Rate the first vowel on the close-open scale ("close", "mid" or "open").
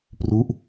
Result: close